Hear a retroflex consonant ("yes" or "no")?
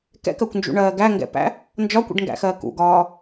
yes